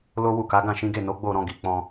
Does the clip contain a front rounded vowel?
no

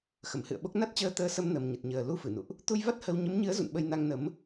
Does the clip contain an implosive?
yes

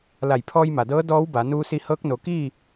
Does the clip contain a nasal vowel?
no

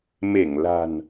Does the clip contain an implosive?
no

